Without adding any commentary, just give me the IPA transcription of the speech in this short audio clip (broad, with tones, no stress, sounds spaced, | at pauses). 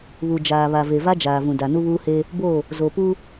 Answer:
β u˨ d͡ʒ aː˨ β a˨ v e˨ v a˦ d͡ʒ aː˨ v ũ˨ d a˨ n u˦ β uː˦ h eː˦ | b oː˦˨ | z o˨ p uː˦